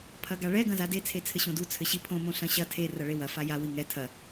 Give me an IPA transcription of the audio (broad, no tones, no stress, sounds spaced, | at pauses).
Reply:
pʰ ɐ ɡ a ɭ ɛ ɡ ɐ̃ z a d e t͡sʰ e t͡sʰ ɘ ɕ õ d u t͡sʰ ɘ ɕ i pʰ õ m õ ɬ ɐ̃ ɕ ɐ tʰ e r ɐ ɭ e w ɐ f a j a w i ŋ ɛ tʰ ɐ